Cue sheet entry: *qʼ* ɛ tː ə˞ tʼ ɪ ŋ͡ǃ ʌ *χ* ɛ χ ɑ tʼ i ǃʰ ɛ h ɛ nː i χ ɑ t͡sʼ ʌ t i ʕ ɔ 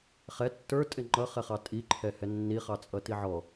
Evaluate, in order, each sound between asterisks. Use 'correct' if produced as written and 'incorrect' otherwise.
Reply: incorrect: χ, correct

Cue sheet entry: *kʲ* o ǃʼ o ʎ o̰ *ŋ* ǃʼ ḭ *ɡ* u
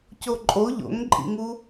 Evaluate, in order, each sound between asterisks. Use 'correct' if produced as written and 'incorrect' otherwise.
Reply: incorrect: c, correct, incorrect: ŋ

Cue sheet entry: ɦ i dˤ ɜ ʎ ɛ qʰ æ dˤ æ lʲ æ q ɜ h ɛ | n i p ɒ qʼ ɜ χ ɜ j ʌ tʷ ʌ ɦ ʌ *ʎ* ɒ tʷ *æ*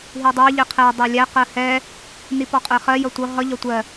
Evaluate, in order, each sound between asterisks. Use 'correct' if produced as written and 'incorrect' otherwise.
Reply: correct, incorrect: ɜ

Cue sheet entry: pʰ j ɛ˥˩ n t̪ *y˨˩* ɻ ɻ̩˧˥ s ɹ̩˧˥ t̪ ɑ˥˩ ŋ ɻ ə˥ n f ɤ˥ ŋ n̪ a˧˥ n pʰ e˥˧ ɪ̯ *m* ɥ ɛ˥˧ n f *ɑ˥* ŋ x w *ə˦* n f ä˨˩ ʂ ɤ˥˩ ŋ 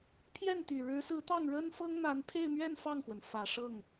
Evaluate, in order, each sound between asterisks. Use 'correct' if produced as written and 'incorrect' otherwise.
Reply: correct, correct, incorrect: ɑ˥˩, incorrect: ə˩

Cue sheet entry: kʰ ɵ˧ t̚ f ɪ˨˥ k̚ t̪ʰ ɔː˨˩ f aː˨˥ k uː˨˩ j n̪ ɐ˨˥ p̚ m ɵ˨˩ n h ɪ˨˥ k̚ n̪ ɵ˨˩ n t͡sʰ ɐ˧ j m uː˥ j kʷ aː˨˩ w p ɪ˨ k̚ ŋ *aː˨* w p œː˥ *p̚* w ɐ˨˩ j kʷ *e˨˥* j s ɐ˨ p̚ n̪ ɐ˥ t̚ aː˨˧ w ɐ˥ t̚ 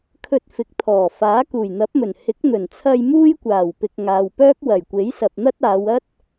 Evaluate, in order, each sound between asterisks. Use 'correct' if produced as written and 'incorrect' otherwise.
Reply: correct, incorrect: k̚, correct

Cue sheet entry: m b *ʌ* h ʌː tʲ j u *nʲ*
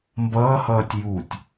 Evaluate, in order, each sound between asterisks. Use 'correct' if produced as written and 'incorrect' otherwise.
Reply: incorrect: ʌː, incorrect: tʲ

